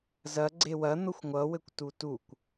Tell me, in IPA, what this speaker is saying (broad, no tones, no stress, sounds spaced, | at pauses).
z ɐ ɡ͡ǀ e w ɐ n̪ ʊ xʷ ŋʷ ʌ w ɘ kʷ t u t u kʷ